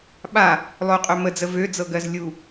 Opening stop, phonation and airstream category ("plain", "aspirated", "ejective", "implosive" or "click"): implosive